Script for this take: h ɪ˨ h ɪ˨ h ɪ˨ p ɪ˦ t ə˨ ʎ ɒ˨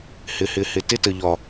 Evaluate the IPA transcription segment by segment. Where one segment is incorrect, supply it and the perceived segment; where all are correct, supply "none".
p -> t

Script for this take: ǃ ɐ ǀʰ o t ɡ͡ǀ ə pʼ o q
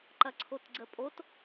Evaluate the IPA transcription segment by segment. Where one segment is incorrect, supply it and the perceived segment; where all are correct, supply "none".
q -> t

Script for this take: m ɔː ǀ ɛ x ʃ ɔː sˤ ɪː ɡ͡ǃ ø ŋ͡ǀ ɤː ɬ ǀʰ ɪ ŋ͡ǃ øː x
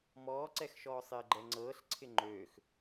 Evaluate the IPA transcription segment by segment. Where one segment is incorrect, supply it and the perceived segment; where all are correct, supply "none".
ø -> ɛ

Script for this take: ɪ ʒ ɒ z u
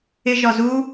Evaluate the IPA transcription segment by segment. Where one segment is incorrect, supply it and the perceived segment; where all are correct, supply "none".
none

